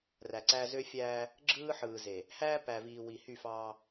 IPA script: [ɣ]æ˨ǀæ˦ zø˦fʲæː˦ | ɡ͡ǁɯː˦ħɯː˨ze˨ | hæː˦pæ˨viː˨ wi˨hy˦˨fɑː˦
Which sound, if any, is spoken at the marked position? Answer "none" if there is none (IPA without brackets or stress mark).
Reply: r